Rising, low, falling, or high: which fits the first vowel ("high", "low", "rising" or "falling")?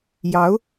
rising